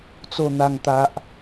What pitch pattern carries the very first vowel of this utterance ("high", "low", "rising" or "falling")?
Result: low